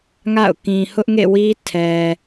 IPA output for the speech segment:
ŋ a̰˦˨ ʊ̯ k ĩ˨ h ʊ˦ ʔ ŋ ḛ˦˨ w i˦ tʰ ɛ˨

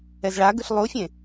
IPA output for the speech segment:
ɛ z ɭ a ɡ ɯ ɬ lˠ u fʲ ẽ

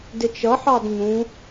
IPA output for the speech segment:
d ɪ t͡ʃ ʌ ħ ɑ d ɲ ũ

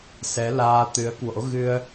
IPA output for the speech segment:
s ɛ˨˦ l aː˧ t̪ ɨ˨˦ ə̯ k w o̰˧˥ ɣ ɨ˧ ə̯

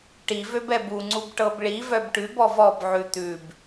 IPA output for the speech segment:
ʈ i v ø b ɛ b u ŋ͡ǀ u b ʈ ɤ b ɭ i v œ b ʈ ʉ b ɔ v ɔ b ʕ ʉ t̪ ʉ b

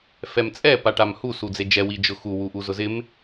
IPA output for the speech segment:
f ɛ m t͡sʼ ɛ p a ʈ a m h u s u d͡z e d͡ʒ ɛ w i d͡ʒ ʊ x u w u ʔ u z ʊ z ɪ m

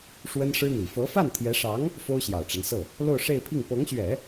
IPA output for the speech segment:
ʂ w ə˥ n ʂ ɻ̩˥ n̪ i˨˩ f ɤ˧˥ f a˥˩ n t̪ʰ j ɛ˧˥ ʂ ɑ˧˥ ŋ | f o˥ ʊ̯ ɕ j ɑ˨˩ ʊ̯ ʈ͡ʂ a˦ n s ɤ˥˩ | l o˥˧ ʊ̯ ʂ e˥˧ ɪ̯ pʰ i˥˩ ŋ p ɤ˧˥ ŋ ɕ ɥ ɛ˨˩˦

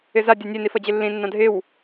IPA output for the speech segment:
ɪ z a dʲ a nʲ e n i f ʌ d͡ʑ ɪ lː ĩ nː ã dʱ ɪ w

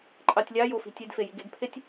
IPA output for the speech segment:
ǃʼ ɑ tʲ lʲ ɑ j o f i̤ tʲ e d f e j i ɡ e ɡ pʰ e tʲ

